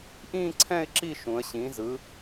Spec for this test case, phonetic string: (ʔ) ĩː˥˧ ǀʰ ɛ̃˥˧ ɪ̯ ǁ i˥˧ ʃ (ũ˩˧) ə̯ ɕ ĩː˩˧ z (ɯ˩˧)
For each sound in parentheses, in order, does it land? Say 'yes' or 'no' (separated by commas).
yes, yes, yes